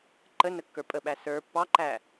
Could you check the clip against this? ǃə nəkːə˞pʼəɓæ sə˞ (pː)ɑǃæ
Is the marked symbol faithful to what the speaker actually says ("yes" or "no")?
yes